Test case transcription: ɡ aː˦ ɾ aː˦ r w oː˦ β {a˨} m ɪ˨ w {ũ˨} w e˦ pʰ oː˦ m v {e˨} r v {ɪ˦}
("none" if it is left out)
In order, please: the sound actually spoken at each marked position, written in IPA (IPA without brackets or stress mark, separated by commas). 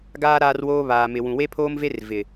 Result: aː˨, ũ˨, e˦, ɪ˨